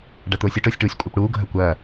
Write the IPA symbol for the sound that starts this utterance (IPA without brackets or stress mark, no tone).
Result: ɖ